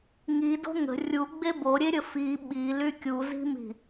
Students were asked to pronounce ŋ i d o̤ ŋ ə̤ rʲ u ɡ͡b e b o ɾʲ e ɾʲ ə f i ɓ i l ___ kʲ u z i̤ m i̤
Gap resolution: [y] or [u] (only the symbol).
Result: y